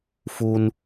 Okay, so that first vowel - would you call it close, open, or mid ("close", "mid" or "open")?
close